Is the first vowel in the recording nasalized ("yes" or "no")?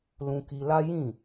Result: yes